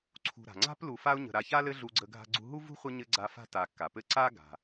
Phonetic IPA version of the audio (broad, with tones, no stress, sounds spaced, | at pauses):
ǀʰ ṳ˨ ɾ a̤˩ ŋ͡ǀ a̤˥ p l u˨ f a˦ ʊ̯ ɲ ə̤˨ ɾ a˨ ç a˥ l ɘ˦ ɮ u˦ ɡ͡ǀ ə˦ ɡʱ a̤˥ ɡ͡ǀ ṳ˥ ɦ u˥ v ṳ˥ χʷ ɘ˦ ɲ ɘ˥ ɡ͡ǀ a˦ f a̤˥ t a˨ kː a˩ p ɘ˥ ǀ a˥ ɡ a̤˩